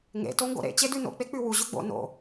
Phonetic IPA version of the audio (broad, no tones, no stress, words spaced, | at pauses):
ŋḛ toŋɡo̰ɾḛ t͡ɕedʉno̰ k͡pek͡pʉwu ʑʉɡ͡bo̰ no̰